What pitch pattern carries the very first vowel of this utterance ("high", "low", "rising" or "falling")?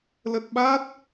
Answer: low